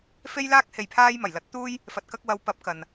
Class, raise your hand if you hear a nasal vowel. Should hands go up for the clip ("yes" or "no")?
no